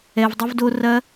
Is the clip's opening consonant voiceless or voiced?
voiced